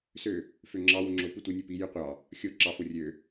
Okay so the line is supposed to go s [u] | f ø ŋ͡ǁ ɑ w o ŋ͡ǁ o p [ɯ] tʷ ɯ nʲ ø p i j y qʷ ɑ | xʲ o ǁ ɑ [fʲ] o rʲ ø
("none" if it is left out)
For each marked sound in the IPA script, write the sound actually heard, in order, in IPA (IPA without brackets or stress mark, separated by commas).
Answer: ø, ɯ, f